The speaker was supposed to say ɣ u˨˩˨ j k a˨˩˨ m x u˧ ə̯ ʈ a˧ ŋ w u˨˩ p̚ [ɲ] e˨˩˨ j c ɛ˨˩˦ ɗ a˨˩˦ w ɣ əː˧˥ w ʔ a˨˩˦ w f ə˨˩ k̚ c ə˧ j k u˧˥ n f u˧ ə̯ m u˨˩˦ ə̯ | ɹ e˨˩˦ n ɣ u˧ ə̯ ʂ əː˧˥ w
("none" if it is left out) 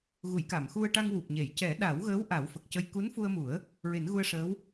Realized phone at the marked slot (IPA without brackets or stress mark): ɲ